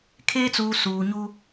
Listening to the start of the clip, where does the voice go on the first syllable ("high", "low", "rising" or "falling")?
high